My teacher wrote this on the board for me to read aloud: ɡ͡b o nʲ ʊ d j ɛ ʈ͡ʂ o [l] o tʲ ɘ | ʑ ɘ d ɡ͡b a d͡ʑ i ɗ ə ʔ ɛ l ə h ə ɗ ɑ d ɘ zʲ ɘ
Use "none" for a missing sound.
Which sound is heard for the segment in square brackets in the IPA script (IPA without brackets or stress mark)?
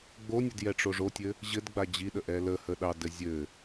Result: ʐ